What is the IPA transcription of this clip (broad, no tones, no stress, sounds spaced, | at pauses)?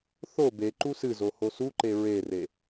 θ o b e ǃ u s ɨ z o h o s u ǃ e ɹ e r e